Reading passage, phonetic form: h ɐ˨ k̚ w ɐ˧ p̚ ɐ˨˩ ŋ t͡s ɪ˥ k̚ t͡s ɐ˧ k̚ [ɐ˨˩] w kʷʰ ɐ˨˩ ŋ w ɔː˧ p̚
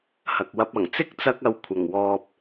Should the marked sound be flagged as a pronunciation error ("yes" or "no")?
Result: yes